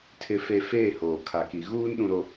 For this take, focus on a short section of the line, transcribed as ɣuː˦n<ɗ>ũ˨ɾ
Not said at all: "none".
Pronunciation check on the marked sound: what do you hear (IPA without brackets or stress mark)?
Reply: ɗ